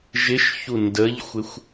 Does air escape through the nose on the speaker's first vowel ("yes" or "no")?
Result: no